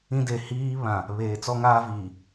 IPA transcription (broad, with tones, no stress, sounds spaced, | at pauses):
ĩ˦ d e˨ h iː˦ β ã˨ | β eː˨ t͡s ɔ˦ ŋ aː˦ v iː˨